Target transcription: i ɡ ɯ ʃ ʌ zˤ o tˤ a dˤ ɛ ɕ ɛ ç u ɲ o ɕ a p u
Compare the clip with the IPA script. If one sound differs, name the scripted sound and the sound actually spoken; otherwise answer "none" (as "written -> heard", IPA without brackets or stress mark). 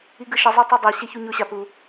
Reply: none